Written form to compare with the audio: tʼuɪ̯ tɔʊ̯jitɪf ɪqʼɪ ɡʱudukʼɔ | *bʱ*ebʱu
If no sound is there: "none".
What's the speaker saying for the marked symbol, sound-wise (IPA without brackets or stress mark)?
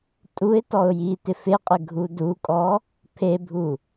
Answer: pʰ